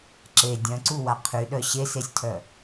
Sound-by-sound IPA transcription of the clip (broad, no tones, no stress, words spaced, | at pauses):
ǁe dʲœ̃ǀuwa qʰyɗœ ɕesesʲtʰœ